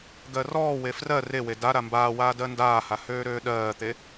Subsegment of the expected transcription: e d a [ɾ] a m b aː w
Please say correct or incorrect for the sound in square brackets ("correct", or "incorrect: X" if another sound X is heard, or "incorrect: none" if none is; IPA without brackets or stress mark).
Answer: correct